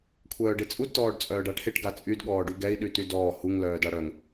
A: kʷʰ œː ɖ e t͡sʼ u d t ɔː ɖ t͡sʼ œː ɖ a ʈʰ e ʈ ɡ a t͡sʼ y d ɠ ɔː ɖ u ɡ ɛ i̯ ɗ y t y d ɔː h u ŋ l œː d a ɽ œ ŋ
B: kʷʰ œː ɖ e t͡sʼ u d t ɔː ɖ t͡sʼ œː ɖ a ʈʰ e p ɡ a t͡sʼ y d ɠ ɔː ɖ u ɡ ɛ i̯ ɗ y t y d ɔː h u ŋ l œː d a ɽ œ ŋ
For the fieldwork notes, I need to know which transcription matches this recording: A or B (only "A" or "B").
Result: A